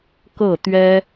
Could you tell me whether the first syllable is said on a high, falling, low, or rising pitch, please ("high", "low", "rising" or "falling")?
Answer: falling